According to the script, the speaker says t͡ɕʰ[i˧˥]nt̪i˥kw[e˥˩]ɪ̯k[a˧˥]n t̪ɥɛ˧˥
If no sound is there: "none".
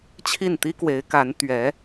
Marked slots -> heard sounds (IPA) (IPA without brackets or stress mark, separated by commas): i˥˩, e˧˥, a˧˥